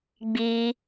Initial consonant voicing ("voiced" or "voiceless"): voiced